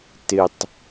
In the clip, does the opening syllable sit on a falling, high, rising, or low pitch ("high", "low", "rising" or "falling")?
low